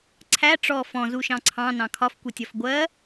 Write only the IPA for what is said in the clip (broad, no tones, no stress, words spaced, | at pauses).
ǀʰæ ʈ͡ʂɔ fɔ̃zuʃɑ̃ ǀʰɑ̃nɑ̃ kʰɒfkʷitʲɒf ɡʷɜ